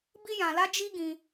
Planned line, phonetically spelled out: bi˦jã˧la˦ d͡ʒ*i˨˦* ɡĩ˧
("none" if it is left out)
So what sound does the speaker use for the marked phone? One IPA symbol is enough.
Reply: i˦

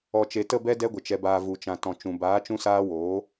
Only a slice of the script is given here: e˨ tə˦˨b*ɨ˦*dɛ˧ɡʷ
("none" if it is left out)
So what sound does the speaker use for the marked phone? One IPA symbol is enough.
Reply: ɛ˦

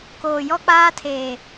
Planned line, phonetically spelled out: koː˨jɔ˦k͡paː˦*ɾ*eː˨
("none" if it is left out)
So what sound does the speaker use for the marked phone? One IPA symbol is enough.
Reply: tʰ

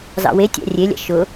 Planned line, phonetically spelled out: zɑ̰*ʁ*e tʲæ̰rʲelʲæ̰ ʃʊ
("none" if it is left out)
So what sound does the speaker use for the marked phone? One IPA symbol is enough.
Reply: w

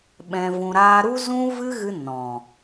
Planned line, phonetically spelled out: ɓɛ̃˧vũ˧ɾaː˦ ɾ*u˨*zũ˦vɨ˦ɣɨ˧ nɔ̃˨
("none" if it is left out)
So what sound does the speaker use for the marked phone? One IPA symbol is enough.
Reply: u˦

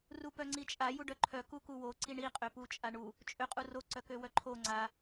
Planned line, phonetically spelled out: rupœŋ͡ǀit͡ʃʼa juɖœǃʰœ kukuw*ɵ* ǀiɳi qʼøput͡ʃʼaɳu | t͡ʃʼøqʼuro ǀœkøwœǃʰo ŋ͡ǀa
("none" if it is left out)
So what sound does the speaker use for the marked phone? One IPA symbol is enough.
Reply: o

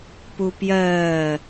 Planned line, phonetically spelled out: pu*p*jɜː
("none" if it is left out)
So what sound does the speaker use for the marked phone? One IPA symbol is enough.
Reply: p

